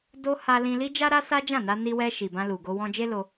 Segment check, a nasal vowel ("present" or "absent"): present